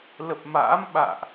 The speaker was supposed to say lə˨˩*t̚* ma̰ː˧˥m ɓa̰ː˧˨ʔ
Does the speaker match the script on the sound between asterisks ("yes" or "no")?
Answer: no